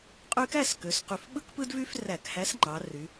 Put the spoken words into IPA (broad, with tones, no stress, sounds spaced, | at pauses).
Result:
qʼ y˦ k æ˥˨ s k ø˩˧ s q y˨˩ f ɓ ɯ˦ k p ɯ˦ d v y˦ f r æ˧˩˧ k h æ˨˥ s ŋ͡ǃ ɑ˩˧ r y˩˧